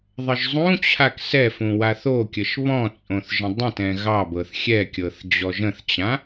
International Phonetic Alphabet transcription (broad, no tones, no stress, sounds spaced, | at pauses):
ðˤ ə ʒ zˤ ũ t͡ɕʰ a k s ɛ f ũ w a θ o kʲ ə ʃ β ɔ̃ t͡sʼ õ θ ʒ ə̃ dˤ ə̃ t ɛ̃ ɣ ɑ b ɤ θ xʲ ɛ kʲ ɤ θ d͡ʑ ɔ ʒ ə̃ θ t͡ɕ ã